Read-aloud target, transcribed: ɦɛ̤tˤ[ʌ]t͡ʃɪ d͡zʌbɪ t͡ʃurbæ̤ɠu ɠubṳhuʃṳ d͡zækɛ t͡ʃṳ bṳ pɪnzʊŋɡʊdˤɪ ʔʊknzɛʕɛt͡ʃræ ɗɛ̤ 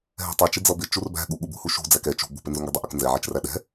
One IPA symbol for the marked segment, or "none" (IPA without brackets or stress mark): ʌ